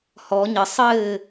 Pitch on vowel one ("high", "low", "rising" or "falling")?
rising